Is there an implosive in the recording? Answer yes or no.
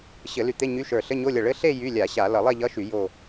no